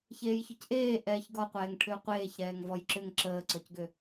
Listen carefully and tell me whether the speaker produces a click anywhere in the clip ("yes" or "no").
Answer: yes